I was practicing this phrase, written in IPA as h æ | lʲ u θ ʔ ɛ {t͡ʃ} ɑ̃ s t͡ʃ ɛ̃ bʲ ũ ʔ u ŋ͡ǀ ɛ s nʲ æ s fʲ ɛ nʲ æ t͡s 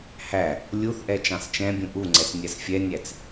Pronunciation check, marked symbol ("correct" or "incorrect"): correct